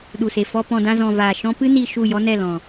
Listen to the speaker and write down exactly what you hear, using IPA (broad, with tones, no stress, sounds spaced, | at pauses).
ɗ u˨ s e˨ f ɔ˧ p ɔ̃˧ d ã˧ z ɔ̃˨ v aː˨ ʃ ɔ̃˦ p ɨ˦ n i˧ ʃ u˦˨ j ɔ˦ n ɛ˦˨ l ɔ̃˨